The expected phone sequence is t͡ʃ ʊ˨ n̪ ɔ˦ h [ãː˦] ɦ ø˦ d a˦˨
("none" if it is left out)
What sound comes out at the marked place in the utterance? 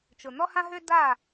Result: ã˦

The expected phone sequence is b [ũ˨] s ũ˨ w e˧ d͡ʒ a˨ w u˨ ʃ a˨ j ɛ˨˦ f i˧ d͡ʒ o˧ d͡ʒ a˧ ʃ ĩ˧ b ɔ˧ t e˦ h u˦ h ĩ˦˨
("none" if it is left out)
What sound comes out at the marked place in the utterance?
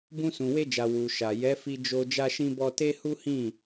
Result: ũ˧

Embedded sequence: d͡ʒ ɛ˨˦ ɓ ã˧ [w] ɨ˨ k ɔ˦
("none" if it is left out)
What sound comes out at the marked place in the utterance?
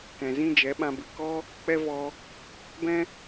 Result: b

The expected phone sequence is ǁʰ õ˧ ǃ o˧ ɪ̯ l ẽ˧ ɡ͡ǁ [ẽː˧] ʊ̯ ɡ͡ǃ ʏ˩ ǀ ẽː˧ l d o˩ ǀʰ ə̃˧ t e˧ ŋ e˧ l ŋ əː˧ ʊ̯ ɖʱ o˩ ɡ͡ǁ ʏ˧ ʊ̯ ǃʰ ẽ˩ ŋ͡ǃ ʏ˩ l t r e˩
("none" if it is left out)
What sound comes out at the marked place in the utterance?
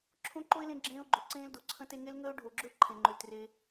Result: ẽː˧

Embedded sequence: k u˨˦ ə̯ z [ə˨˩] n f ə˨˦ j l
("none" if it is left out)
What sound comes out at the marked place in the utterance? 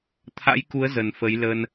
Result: ə˨˩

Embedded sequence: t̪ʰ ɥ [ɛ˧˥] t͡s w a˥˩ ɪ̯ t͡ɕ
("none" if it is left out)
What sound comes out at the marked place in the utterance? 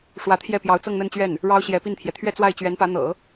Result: ɛ˥˧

